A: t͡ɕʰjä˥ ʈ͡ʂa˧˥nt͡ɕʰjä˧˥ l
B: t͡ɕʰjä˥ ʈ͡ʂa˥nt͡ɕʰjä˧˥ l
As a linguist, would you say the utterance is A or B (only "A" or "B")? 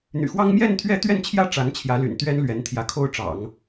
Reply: A